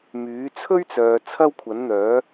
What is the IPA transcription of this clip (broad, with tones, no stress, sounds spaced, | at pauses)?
m yː˨˥ t͡sʰ ɵ˥ ɥ t͡s œː˨ t͡sʰ ɐ˥ w kʷʰ ɐ˨˥ n n̪ œː˨˥